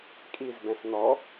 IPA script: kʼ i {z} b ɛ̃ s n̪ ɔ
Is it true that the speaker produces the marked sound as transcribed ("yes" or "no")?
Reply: yes